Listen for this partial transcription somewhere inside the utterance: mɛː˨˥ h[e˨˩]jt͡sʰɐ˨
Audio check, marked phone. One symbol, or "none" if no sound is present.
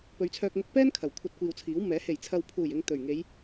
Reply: e˨˩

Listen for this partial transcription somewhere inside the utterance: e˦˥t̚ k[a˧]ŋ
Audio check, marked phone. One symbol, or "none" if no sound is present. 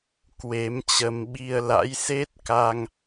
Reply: a˧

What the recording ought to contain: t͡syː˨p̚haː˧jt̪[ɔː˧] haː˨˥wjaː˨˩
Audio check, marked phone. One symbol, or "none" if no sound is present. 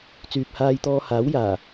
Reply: ɔː˧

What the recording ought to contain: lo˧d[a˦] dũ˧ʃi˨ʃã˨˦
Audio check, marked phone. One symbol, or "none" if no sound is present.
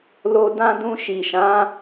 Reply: ã˦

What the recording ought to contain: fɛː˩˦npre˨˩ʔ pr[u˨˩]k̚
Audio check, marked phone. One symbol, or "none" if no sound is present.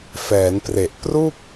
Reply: u˥˩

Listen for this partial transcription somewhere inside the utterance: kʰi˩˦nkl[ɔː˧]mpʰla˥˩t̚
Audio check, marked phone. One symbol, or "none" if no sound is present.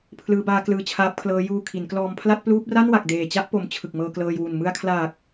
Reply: ɔː˧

